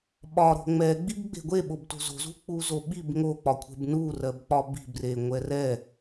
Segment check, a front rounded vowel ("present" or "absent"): absent